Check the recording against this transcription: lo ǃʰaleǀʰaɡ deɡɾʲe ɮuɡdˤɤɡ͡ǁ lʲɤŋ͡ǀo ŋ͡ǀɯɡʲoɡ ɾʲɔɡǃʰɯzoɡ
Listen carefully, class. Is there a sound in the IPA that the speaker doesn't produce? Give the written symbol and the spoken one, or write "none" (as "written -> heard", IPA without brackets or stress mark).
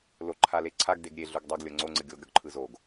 ɡ͡ǁ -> ɡ